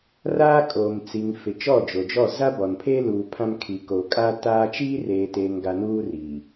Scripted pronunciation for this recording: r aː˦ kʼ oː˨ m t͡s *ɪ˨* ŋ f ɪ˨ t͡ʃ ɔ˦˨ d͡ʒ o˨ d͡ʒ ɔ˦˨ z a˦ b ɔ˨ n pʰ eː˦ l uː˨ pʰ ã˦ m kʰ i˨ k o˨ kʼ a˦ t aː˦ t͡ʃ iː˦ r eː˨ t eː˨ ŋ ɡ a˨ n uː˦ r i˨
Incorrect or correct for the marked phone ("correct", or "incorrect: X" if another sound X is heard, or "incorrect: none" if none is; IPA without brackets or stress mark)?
incorrect: i˨